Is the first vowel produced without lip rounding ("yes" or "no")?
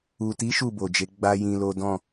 no